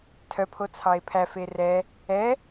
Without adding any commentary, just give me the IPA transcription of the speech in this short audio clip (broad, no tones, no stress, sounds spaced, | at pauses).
tʰ œ pʰ o t͡sʰ ɑ e̯ pʰ æ f e r ɛ | ɛ